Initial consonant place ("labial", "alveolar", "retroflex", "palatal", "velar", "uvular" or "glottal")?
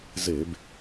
alveolar